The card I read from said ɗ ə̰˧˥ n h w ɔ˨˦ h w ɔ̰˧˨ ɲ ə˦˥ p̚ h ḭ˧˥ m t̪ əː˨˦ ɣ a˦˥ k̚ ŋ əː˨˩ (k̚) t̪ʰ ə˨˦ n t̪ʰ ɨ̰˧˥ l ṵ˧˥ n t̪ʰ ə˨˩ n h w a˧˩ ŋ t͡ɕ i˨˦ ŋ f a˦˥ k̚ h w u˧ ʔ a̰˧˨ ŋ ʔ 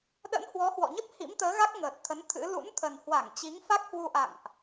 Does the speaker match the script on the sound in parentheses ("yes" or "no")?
no